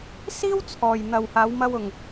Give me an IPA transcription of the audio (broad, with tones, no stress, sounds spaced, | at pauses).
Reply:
s iː˥ w t͡sʰ ɔː˨ j n̪ ɐ˨ w h aː˨˧ w m ɐ˧ w ʊ˨ ŋ